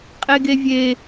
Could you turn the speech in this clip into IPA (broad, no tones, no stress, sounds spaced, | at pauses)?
qʼ e ɡ e vʲ e